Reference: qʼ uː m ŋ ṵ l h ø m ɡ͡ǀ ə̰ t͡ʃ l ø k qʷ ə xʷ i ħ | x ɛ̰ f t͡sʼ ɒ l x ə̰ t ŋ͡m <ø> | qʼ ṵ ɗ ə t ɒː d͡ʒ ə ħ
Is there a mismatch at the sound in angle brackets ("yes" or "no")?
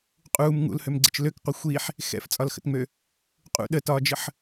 no